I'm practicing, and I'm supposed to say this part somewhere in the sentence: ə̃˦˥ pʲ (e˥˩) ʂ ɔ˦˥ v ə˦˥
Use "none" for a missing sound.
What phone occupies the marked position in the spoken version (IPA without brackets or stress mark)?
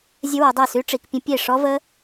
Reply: e˥˩